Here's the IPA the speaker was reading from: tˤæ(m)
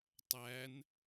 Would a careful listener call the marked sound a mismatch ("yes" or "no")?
yes